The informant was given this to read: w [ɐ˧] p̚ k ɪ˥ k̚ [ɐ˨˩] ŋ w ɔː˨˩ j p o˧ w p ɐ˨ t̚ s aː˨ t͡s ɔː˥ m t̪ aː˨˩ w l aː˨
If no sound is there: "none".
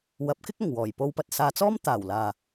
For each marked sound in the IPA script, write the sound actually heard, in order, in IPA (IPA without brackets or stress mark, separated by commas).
ɐ˨˥, ɐ˨˩